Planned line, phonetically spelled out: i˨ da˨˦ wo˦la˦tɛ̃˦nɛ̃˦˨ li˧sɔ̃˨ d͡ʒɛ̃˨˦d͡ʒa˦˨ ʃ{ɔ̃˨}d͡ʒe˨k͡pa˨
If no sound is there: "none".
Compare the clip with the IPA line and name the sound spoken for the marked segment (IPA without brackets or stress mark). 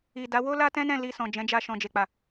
ɔ̃˨